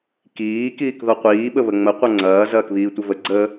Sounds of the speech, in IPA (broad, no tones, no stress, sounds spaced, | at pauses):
k iː k iː k ð ɔ qʷ iː ɓ ə β ə ŋ͡m ə qʷ ɐ ŋ͡ǀ ɐː z ɐː k β iː tʷ ə v ə ɡ͡ǀ ə